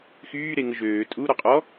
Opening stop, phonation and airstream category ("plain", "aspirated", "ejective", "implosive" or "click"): ejective